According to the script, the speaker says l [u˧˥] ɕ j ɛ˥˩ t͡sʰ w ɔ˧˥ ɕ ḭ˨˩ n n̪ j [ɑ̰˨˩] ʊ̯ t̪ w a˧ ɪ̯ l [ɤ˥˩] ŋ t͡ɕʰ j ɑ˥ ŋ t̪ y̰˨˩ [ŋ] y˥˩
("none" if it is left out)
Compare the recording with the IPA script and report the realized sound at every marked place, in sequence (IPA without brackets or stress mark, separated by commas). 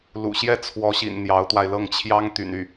ṵ˨˩, ɑ˧˥, ɤ˥˩, n